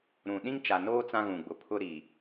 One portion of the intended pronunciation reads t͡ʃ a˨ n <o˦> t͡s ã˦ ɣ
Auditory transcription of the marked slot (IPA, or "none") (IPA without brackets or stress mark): oː˦